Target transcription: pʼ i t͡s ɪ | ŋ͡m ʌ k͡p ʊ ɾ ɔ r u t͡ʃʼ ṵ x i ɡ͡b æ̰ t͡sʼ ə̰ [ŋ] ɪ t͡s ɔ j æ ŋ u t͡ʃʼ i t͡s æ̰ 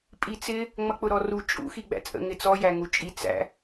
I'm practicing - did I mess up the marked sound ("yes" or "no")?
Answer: no